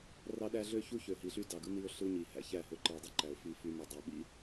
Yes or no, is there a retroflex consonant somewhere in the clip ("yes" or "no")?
no